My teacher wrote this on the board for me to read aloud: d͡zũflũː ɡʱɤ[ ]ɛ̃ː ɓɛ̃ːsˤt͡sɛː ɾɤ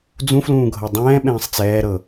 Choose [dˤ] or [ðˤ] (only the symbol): dˤ